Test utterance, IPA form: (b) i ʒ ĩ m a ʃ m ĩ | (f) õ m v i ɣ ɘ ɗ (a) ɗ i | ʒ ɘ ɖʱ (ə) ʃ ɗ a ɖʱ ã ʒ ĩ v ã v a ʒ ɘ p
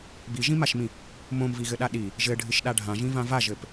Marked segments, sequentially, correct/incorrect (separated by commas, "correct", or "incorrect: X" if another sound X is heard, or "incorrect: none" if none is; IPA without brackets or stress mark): correct, incorrect: m, correct, incorrect: ɨ